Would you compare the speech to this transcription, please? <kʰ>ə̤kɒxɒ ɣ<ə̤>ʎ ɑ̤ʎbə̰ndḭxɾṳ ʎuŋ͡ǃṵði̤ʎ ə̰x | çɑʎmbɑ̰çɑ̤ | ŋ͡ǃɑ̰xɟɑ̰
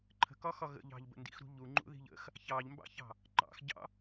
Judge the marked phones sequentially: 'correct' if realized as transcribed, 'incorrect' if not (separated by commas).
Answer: incorrect, incorrect